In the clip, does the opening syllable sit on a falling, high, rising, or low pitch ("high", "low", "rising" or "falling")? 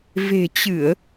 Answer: low